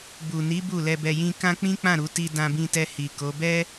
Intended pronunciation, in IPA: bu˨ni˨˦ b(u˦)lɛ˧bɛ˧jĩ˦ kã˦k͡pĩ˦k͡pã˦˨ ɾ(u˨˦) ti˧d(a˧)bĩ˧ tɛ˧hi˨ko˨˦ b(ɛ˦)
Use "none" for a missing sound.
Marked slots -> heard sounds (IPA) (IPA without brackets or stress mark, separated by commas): u˦˨, u˨˦, ã˧, ɛ˦